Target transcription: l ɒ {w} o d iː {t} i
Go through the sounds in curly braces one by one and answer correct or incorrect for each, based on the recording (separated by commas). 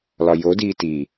incorrect, correct